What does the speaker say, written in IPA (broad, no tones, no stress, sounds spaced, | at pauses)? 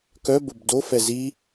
k œ b o b d o f ɛ z i